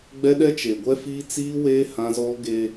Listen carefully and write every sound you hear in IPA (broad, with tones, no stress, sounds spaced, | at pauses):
ɡ͡b ɛ˦ ɗ ɛ˦ t͡ʃ e˨ ɡʷ ɛ˦ f iː˦ t͡s iː˦ w eː˦ h ã˦ z ɔ˦ ɡ e˦